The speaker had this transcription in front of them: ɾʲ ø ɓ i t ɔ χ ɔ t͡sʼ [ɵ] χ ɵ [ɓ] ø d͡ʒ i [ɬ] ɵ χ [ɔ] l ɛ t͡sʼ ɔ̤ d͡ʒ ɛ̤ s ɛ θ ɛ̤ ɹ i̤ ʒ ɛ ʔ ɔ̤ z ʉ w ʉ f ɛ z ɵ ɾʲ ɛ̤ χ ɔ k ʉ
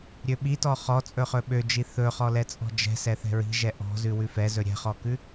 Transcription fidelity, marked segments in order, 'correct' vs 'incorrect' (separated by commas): correct, correct, incorrect, correct